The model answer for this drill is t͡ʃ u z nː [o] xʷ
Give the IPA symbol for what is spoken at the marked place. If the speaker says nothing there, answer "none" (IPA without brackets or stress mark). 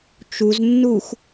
u